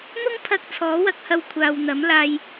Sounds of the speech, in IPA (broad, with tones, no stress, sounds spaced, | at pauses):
n̪ ʊ˥ ŋ pʰ ɐ˧ k̚ t͡sʰ ɔː˨˥ w ɐ˧ k̚ h ɐ˧ w kʷʰ aː˨ w n̪ ɐ˨˥ m l aː˧ j